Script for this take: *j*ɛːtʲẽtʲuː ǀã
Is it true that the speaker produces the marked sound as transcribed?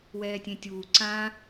no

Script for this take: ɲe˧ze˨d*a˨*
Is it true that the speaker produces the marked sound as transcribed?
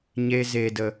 no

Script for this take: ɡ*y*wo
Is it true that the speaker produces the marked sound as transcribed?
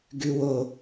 yes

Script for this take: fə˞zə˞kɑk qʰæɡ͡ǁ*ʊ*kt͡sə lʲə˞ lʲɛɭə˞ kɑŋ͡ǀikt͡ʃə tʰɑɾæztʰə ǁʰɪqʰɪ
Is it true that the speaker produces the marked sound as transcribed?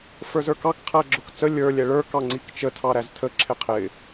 yes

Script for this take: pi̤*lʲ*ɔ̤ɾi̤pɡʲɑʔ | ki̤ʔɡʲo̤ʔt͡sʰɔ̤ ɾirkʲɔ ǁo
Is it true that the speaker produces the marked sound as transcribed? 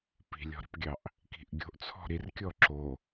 yes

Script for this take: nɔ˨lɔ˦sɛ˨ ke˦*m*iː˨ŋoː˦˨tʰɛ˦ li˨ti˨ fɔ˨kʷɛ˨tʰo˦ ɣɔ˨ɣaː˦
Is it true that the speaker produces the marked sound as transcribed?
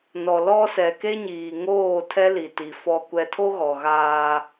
no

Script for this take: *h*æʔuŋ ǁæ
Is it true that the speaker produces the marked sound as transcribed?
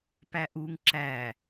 no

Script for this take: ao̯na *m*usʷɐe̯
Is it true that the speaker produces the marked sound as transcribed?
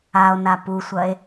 no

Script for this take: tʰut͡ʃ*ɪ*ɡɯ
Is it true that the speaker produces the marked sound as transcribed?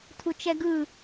no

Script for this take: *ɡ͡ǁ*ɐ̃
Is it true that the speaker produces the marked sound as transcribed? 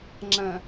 no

